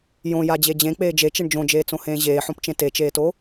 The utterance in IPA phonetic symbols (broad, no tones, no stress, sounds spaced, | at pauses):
j õ j a d͡ʑ e d͡ʑ ẽ k͡p eː d͡ʒ e t͡ʃ e ɳ d͡ʒ õ d͡ʒ eː t͡s õ h ẽː ʑ eː ħ õ p t͡ʃ ẽ t e t͡ʃ eː t o